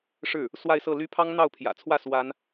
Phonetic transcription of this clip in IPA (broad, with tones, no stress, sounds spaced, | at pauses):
ʂ ɻ̩˥˩ | s w a˥˧ ɪ̯ s ɤ˥˩ l y˥ pʰ ɑ˥ ŋ n̪ ɑ˥˩ ʊ̯ pʰ j ä̰˨˩ t͡sʰ w ä˥˩ s w a˥ n